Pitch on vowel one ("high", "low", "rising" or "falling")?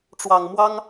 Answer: low